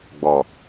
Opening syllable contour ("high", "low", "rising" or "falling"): low